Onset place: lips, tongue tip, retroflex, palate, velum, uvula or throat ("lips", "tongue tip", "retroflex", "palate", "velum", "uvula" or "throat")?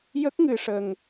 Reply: palate